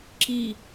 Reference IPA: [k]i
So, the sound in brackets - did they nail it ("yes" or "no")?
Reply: no